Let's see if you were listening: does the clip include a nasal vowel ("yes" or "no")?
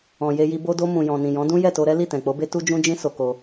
yes